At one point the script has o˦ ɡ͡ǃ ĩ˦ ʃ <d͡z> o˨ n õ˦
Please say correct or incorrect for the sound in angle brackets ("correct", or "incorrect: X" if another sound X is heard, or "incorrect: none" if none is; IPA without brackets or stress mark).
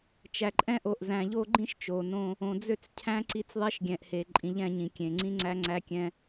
incorrect: t͡ʃ